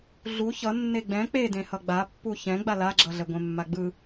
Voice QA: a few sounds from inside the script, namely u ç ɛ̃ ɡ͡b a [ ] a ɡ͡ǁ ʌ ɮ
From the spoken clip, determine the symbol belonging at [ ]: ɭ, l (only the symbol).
l